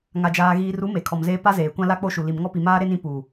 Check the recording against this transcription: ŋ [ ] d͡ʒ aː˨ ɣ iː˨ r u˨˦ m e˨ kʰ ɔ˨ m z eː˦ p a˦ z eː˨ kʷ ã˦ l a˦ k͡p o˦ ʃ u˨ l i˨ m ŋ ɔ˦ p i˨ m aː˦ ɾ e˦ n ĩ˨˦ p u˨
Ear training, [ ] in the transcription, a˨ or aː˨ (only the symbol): a˨